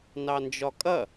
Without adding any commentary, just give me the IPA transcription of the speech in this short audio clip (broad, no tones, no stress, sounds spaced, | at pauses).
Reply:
n ɑ n d͡ʒ ɒ kʼ ɐ